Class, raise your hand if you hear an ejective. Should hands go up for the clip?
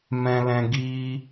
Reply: no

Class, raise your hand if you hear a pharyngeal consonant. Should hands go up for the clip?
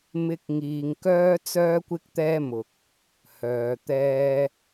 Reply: no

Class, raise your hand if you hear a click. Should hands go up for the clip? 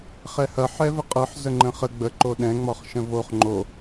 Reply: yes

